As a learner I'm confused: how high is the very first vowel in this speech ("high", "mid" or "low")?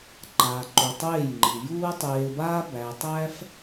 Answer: low